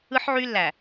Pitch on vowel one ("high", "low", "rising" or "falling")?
high